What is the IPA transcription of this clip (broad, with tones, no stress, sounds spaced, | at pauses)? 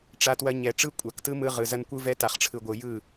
ʈ͡ʂ a˧ t w ɐ˧ ɲ ɛ˨ ʈ͡ʂ ɯ˦ kʷʼ a˨ k t ɯ˦ m ɯ˧ ʁ ɯ˨ z ɐ˦ n kʷ ɯ˦ v ɛ˦ t a˨ χ ʈ͡ʂʰ ɯ˨ ɡʷ ɯ˨ j ɯ˦˨